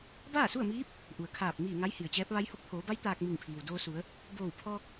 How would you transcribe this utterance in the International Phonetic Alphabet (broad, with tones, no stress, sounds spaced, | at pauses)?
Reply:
b aː˥˨ s u˥˨ ə̯ m iː˧˥ p̚ | ʔ u˩ ə̯ kʰ aː˧˩ p̚ m iː˧˩ ŋ a˧˥ j h i˩ ə̯ t͡ɕ ɛː˧˥ p̚ ʋ a˧˥ j h o˧ k̚ t̪ʰ oː˩˧ b a˧˥ j t̪ aː˧ k̚ m i˧˩ ŋ pʰ iː˩ w d oː˧ s u˩˧ ə̯ | b oː˧˩ w pʰ ɔː˧ k̚